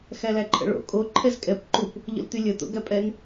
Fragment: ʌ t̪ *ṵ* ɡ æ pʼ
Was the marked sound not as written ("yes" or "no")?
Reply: yes